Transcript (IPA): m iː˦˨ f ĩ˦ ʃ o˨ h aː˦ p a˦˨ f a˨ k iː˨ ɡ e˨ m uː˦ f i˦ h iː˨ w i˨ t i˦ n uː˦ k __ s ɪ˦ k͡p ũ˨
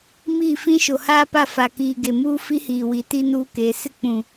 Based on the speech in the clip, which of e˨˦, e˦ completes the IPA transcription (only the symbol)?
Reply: e˨˦